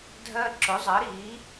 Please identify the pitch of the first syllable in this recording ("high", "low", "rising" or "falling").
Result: high